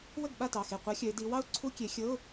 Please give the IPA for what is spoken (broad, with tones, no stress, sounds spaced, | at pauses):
w ə˥˩ ɡ ɓ a˥˩ t ɑ˩˧˩ x e˧˩ qʷ a˦˥ xʲ œ˨˦ ɪ̯ d i˨˦ w ɑ˦˥ ʊ̯ ǀʰ u˧˥˧ kʲ e˨˦ xʲ ɤ˧˥˧ ʊ̯